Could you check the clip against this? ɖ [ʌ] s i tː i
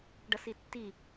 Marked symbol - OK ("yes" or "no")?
yes